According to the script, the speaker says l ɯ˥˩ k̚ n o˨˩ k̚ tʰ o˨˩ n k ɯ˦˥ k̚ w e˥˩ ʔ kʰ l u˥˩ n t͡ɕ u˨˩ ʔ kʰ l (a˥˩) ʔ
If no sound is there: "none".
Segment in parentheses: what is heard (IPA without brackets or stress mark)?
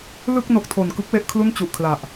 a˨˩